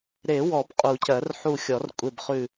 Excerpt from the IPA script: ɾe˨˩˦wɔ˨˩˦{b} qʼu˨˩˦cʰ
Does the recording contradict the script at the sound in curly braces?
no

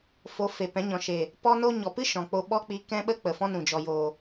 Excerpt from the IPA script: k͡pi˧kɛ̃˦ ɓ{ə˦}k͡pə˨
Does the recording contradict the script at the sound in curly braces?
no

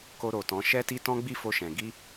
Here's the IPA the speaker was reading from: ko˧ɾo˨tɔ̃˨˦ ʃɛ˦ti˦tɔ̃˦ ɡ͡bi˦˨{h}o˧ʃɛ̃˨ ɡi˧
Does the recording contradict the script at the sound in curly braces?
yes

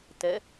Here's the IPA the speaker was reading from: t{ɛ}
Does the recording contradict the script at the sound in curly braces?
no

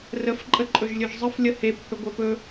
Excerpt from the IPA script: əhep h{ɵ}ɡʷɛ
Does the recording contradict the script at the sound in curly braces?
no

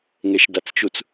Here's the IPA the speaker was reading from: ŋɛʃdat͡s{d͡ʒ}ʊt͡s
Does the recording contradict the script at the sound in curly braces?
yes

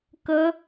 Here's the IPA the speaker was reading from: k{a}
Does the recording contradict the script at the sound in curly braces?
yes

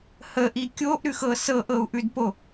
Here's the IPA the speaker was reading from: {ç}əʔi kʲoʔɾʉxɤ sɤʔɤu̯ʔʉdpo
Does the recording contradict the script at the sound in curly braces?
yes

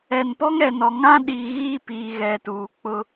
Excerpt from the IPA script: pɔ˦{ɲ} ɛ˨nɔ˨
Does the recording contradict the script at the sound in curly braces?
yes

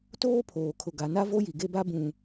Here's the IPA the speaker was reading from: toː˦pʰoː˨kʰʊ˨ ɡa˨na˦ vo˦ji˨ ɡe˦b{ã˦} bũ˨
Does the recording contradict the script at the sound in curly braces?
yes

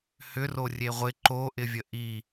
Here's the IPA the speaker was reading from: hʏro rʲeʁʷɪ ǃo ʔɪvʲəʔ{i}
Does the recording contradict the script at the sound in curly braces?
no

